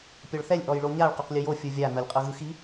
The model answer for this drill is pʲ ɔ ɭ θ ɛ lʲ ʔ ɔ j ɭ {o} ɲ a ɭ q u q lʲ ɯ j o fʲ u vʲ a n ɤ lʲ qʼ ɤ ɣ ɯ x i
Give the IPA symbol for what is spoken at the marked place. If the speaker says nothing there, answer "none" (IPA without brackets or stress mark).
o